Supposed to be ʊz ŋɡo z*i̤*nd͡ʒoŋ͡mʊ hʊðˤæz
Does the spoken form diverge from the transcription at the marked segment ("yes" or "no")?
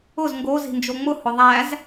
no